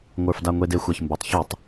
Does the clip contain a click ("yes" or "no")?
no